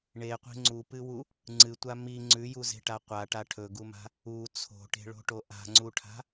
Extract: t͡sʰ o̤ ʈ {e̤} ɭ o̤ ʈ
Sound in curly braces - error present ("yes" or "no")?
no